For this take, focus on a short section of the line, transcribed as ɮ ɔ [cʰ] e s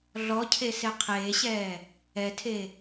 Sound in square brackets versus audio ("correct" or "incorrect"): correct